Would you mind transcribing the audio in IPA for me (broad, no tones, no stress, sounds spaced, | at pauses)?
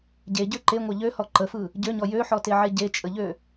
ɟ e ɟ ø ǃ e ŋʷ ɑ ʎ ø h ɔ ǃ ə f ɯ | ɟ ø ɲ ɔ j ø ħ ɔ t e ʕ e ɟ e t͡ʃʼ ə ʎ ø